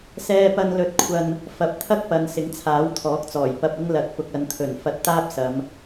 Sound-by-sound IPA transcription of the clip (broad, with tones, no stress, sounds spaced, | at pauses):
s ɛː˥ p ɐ˥ n l ɵ˧ t̚ kʷʰ ɐ˧ n | f ɐ˨˥ p̚ t̪ʰ ɐ˥ k̚ p ɐ˨˧ n s ɪ˨˥ ŋ t͡sʰ aː˨˥ w t̪ʰ ɔː˨˥ k̚ t͡s ɔː˨˩ j p ɐ˧ p̚ ɪ˥ ŋ l ɐ˨˥ t̚ p ʊ˨ k̚ ɐ˨˧ n t̪ʰ ɵ˨˩ n f ɐ˧ t̚ t̪ aː˥ p̚ s ɐ˨˧ m